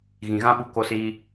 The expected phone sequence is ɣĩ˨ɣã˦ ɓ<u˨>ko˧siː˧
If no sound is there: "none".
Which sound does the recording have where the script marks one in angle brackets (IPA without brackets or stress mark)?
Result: u˧